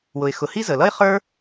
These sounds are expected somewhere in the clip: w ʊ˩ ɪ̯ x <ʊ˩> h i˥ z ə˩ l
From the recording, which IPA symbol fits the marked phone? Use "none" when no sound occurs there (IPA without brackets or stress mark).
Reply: ʊ˩